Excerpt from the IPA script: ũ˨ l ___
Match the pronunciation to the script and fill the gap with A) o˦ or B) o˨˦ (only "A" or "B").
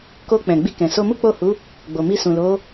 B